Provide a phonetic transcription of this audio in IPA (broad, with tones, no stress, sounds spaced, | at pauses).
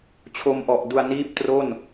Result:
t͡ɕʰ o˧ m ʔ ɔ˨˩ ʔ d u˧ a̯ n iː˥˩ p̚ t r o˥˩ n